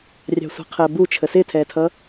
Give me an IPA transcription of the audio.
rʲɑ̤sʷɑ̤qʰəːbu t͡ʃʰəsɪtʰɛːtʰʌ

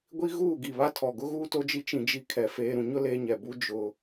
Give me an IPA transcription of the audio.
ɡʷi˦ɣuː˦˨ ɡi˨βa˦tʰɔ˨ɡʊ˦ ɣuː˦to˦d͡ʒi˦ t͡ʃĩ˦d͡ʒi˦ kʰɛ˨ feː˨ɾũ˨ɲʊ˦ leː˦ɲɛ˨ bu˦ d͡ʒʊ˦

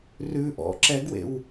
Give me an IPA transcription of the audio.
rʉ ʔɔ̰ ǁɛɡwḛw

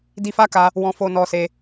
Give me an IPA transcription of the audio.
di˧fa˦ka˧ | wɔ̃˧fo˧nɔ˧ se˧

